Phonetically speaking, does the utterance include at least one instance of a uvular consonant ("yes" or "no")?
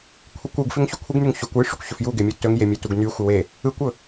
no